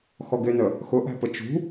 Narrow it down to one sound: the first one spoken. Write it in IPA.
x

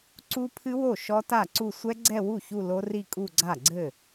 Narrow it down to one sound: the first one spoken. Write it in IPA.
ǀ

